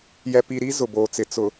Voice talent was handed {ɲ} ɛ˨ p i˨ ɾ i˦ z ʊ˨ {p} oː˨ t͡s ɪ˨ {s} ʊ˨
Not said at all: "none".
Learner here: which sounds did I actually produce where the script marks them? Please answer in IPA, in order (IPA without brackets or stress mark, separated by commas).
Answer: j, b, t͡s